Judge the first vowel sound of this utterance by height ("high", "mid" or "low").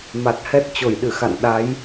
low